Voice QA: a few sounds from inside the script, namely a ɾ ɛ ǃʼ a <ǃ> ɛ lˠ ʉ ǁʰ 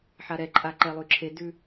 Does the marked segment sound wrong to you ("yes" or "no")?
no